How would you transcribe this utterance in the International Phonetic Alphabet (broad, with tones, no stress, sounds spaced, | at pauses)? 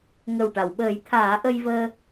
ŋ ə˨˩ w ʈ a˨˩˨ w ɓ əː˨˩˦ j t̪ʰ aː˨˩˦ ʔ ə˧ j v əː˧